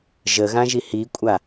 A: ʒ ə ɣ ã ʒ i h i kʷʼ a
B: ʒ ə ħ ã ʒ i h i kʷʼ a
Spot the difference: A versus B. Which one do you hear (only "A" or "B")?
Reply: A